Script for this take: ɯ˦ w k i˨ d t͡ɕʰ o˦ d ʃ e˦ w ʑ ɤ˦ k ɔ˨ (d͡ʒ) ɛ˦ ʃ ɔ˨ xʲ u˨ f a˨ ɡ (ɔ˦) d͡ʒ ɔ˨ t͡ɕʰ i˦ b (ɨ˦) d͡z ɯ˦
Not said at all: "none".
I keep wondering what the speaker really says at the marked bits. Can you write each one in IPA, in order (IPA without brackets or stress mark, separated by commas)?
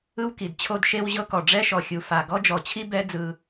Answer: ɖ͡ʐ, ɔ˦, ɛ˦